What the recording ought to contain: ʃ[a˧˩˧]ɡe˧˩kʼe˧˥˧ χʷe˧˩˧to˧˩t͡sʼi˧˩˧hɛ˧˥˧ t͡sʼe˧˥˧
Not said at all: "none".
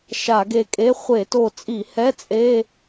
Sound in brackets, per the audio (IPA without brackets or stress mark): a˧˩˧